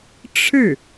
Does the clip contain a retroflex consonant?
yes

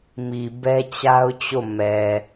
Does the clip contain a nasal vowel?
no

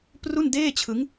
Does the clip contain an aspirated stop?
yes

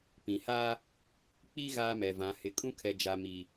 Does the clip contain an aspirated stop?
yes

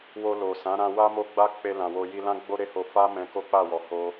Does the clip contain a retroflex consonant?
no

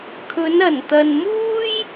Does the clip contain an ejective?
no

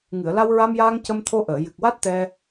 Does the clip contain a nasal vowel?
no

